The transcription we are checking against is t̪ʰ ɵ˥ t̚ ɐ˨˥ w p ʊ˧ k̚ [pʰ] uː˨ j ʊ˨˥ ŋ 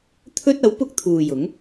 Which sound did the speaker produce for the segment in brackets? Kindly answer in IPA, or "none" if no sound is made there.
t̪ʰ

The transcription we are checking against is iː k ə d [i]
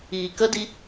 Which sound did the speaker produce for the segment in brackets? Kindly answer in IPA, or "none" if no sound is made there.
i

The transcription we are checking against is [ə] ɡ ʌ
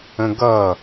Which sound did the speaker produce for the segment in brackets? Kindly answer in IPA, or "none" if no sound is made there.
ə̃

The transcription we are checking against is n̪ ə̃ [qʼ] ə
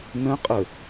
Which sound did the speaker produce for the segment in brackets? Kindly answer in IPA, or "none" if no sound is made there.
qʼ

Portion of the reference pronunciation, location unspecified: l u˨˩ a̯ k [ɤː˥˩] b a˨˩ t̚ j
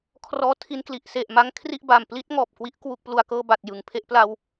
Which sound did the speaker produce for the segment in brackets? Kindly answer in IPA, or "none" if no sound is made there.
ɤː˥˩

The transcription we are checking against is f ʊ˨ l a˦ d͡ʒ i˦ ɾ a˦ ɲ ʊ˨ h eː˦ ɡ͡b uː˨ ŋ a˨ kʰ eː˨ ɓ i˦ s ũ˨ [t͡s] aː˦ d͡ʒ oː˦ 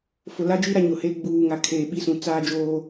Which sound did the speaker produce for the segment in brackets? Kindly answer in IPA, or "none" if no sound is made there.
t͡s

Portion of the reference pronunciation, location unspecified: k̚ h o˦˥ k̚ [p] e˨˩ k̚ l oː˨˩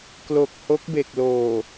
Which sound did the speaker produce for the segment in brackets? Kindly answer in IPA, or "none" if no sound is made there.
b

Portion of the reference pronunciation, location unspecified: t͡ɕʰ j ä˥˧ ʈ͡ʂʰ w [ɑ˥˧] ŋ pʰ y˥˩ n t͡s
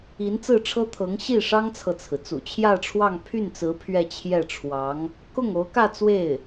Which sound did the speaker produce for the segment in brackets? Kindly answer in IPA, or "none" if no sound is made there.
ɑ˥˧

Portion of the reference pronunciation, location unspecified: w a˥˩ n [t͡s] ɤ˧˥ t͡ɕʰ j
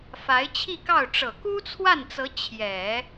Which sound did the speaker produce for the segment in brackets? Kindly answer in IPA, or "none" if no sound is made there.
t͡s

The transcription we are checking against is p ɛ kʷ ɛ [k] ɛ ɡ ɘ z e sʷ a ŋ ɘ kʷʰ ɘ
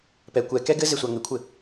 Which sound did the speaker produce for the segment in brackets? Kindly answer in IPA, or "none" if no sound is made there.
k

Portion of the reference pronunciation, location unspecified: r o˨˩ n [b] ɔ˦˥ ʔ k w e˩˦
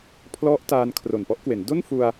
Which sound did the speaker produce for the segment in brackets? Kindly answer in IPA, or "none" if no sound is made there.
p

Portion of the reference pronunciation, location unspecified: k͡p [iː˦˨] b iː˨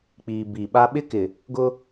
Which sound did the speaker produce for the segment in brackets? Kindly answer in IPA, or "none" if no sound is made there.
iː˨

